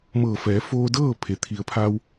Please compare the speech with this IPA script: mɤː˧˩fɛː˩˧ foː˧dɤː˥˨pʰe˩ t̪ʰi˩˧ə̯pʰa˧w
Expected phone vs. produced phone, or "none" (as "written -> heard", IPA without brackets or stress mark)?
none